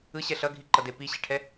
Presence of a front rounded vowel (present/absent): absent